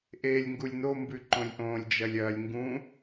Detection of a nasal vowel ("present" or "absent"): present